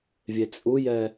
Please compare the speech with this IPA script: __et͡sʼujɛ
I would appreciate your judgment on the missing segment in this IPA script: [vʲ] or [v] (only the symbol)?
vʲ